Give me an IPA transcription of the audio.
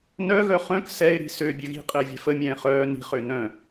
n œ ɣ œ χ œ̃ k s ɛ ɪ̯ ɾ i̤ s ø bʲ ø ɣ i̤ qʼ ɘː vʲ ɛ̤ f ə mʲ ɛ̃ː χ œː n i̤ χ ø n œ̃

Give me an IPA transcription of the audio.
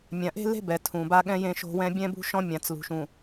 mʲ ã˨ ʔ e̤˦ l e̤˦ b ɛ˨ tʰ ũ˨ b a˦ ɠ ɛ̃˦ j ẽ˦ ʃ o̤˦ w ɛ̃˦ bʲ ɛ̃˦ b ṳ˦ ʃ ɔ̃˦ mʲ ã˨ t͡s l ṳ˨ ʃ ũ˨

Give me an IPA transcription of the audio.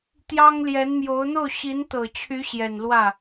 t̪ j ɑ˥ ŋ l j ɛ˧˥ n m j o˧˥ ʊ̯ n̪ o˥˩ ʊ̯ ɕ i˧˥ n t̪ ɤ˨˩ t͡ɕʰ y˧˥ ɕ j ɛ˨˩ n l w ä˥˩

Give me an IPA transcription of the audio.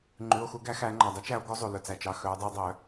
ŋ͡ǃ ʉ˩˧˩ o̯ x u˨˩˦ ɡ æ˨˩˦ x æ˨˩˦ ŋ͡ǃ ɑ˩ dˤ ɛ˧˥ t͡ʃ æ˨˩˦ o̯ ɡ o˧˥ zˤ u˩ l ɵ˩ t͡s æ˩ t͡ʃ ɑ˩˧˩ x œ˨˩˦ o̯ dˤ u˨˩˦ dˤ œ˨˩˦

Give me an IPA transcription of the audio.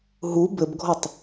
ɦ u b ɘ b ɡʱ ɔ tˤ

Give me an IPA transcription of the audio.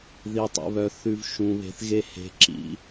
ð i˨ tˤ ṵ˨ β œ˨ θ ʉ˨ v ʃ ũ˨ β e̤˨ θ ɣ e˧ h e̤˨˦ ǁ ḭ˧

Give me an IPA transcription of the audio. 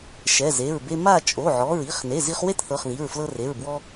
ʃ ɛ˩˧˩ z e˩˧˩ ɹ b e˧ m a˥˨ t͡ʃʼ o˩˧˩ ʕ ɔ˩˧˩ ɹ i˩˧˩ χ n e˩˧˩ z i˧ χ w e˥˨ t θ ɤ˩˧˩ χ ð i˩˧˩ ɹ f l ɤ˧ r e˩˧˩ ɹ b w ɔ˧

